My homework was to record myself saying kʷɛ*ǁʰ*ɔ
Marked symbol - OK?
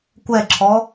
yes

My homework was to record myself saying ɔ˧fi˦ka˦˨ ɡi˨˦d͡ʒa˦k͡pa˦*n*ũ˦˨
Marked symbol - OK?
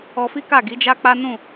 yes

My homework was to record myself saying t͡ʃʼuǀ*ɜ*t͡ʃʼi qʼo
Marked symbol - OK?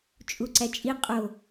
no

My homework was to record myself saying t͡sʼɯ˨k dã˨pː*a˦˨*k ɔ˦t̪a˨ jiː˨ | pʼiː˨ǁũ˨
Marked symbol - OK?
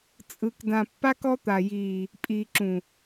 no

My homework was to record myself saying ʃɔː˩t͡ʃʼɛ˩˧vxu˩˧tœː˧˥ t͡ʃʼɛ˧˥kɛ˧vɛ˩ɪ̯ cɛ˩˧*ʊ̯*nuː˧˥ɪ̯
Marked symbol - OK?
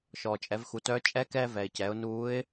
yes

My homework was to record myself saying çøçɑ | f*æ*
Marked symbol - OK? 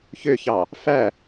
yes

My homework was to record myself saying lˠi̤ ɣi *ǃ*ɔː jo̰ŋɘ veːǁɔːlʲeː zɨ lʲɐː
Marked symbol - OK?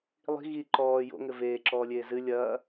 yes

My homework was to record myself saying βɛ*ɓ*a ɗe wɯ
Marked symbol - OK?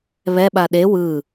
yes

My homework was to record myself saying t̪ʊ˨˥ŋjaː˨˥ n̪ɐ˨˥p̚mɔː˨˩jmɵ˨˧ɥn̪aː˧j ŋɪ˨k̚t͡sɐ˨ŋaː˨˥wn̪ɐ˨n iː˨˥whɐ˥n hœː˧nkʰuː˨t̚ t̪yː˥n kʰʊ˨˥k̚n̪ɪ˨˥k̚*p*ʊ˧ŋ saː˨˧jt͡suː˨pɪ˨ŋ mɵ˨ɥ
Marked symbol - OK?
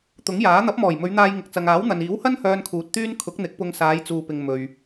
yes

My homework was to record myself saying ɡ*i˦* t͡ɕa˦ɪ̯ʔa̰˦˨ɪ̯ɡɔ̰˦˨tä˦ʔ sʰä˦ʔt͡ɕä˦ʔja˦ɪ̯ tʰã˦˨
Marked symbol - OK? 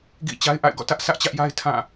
no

